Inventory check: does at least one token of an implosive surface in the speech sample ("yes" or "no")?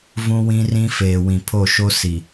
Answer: no